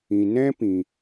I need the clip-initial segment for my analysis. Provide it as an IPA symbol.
ĩ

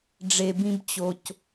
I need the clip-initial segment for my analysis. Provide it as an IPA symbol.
ɖ͡ʐ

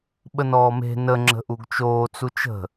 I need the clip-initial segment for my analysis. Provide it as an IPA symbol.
ɓ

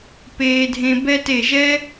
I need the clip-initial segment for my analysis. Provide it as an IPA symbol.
p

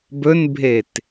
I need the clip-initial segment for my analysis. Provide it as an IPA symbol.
b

